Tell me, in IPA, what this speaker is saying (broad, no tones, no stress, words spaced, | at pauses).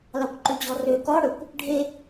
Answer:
lɑkʷǃʉd͡ʑɔrø kɔ ɽɵkʷ | ɖʱe